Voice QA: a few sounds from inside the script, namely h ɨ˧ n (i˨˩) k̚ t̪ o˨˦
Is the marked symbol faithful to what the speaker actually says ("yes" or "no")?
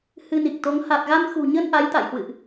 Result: yes